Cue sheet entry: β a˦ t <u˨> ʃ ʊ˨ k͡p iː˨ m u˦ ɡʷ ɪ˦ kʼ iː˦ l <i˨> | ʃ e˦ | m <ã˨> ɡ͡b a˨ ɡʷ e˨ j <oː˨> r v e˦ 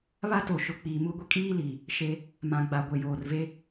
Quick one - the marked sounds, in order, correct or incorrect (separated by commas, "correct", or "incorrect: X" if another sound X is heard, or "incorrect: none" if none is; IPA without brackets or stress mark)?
incorrect: o˨, correct, correct, correct